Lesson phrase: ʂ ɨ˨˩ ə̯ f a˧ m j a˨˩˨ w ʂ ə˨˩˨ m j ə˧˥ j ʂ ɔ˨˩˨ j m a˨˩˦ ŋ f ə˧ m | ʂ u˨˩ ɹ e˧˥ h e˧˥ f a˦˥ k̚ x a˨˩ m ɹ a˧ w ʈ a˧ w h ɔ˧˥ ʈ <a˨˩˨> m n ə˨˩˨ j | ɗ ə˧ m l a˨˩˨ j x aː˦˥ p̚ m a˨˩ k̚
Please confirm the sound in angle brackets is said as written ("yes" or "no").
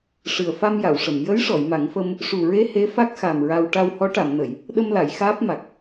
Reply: yes